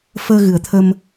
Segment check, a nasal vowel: absent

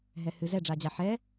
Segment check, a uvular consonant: absent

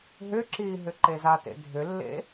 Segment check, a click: present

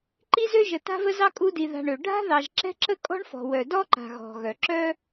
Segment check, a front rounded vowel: present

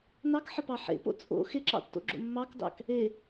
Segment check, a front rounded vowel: absent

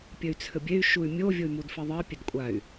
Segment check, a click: absent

